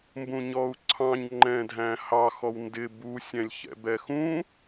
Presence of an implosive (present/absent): absent